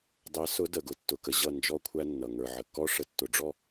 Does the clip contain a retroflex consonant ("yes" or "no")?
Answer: yes